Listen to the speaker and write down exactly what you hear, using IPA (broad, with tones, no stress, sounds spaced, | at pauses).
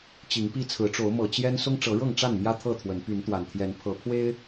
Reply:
t͡ɕ i˨˦ ŋ p i˦ t͡sʰ ɹ̩˨˦ ʈ͡ʂ o˨˦ ʊ̯ m ɤ˨˩ t͡ɕ j ɛ˦ n s ʊ˦ ŋ ʈ͡ʂ ɤ˨˦ ɻ ɤ˥˨ ŋ ʈ͡ʂ a˥˨ n m j ä˦ t̪ʰ ɤ˥˨ t̪ʰ w ə˨˦ n p y˨˦ n t̪ w a˨˩ n t̪ʰ j ɛ˨˦ n pʰ ɤ˨˦ pʰ w e˦ ɪ̯